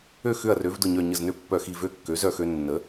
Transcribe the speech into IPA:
ø˥˨ x ʏ˥˨ ɐ̯ r ø˩˥ v d ʊ˧˩ ɲ œ˧˩ ɲ ə˧˩ z n ø˥˨ pː œ˧˩ x i˧˩ v ø˦ kː ø˩˥ z œ˥˨ x ø˦ nː ə˩˥

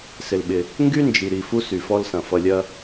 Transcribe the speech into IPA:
s ɪ˨ l ɓ ɪ˨ | ŋ ɡ y˦ n d͡ʒ i˨ ɾ i˨ f u˦ s y˨ f ɔ˦ l s ɐ̃˨ f ʌ˨ lʲ ɐ˦

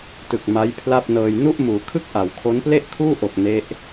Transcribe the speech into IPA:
t ɯ˨˩ k̚ m a˦˥ j pʰ l a˥˩ p̚ n ɤː˧ j n u˥˩ ʔ m uː˩˦ kʰ ɯ˥˩ k̚ ʔ a˩˦ w kʰ o˦˥ n p l e˥˩ ʔ kʰ uː˥˩ ʔ o˨˩ k̚ n e˦˥ ʔ

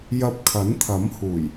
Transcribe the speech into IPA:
j ɐ˧ p̚ kʰ ɐ˨˥ n t̪ʰ ɐ˨˥ m h uː˨˩ j

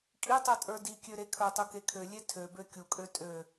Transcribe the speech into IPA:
kʼ i tˤ ə˞ tʼ ə˞ d i kʲ ø ɾ e kʰ ə˞ tˤ u k e kʰ ø lʲ e tʰ ø b ø kʲ u kʼ ø tʼ ø

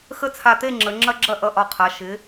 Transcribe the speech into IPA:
x ə˥˨ t͡sʰ a˧˩ t̪ e˥˨ ŋ͡ǁ ə˩˧ ŋ͡ǁ ɐ˦ ɡ͡ǁ ɐ˥˨ ʔ ʌ˧˩ ʔ ɒ˧˩ qʰ a˩˧ ʃ ɪ˩˧

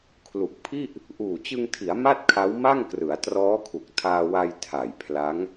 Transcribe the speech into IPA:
kʰ l u˨˩ k̚ pʰ i˥˩ ʔ | ʔ uː˨˩ t͡ɕ ɯ˧ ŋ tʰ i˩˦ a̯ m a˥˩ t̚ kʰ a˦˥ w m a˥˩ ŋ k r ɯ˩˦ a̯ t r ɔː˦˥ kʰ u˨˩ k̚ tʰ aː˧ w a˧ j tʰ a˨˩ j pʰ l a˦˥ ŋ

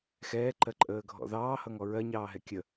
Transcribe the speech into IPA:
x ɛː ǃ ɜ ǃʼ əː ɡʱ ɔ̰ ð ɑː h ʌ ŋ ɔ ɹ ɜ ɲ ɑː ɦ ɛ kʲ ə

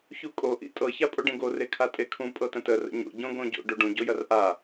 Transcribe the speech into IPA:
ç u kʼ o ʔ ḭ tʼ ɤ ç a pʼ o ɖ ẽ ɡ o r e kʰ a tʼ e kʰ ũ pʼ ɤ t ə̃ t ə r ə̰ ɲ o̰ ɟ õ ɡ õ ɟ o̰ ɖ o ɖ ũ ɟ o j ɐ r ʔ a

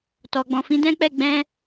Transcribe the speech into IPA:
t ɔ˨ ɡ͡b ɔ̃˨ f ĩ˨˦ d ɛ̃˦ k͡p ɛ˦˨ ɡ͡b ɛ̃˧

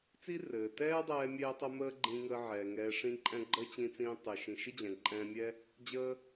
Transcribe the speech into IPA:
t͡s i˥ r ɘː˩ t ɛː˥ dˤ ɛː˧ mʲ ɛː˥ tˤ ə˥ m əː˥ ɡ͡ǃ ĩ˧ ŋ əː˧ ʕ ɛː˩ ŋ ɛː˧ ʂ ĩ˥ ǃʼ ɛ̃˥ ɡ͡ǃ əː˥ t͡ɕ ĩ˧ t͡s ĩː˧ tˤ ɘ˩ ʃ ĩ˩ ʃ ɘ˥ d͡ʑ ɛ̃˩ ǃʼ ɛ̃ː˧ mʲ ɛ˥ | d͡ʑ əː˥

